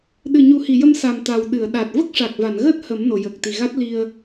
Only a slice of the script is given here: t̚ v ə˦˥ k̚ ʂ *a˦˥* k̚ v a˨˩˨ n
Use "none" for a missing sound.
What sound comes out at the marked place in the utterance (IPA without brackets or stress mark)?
a˨˩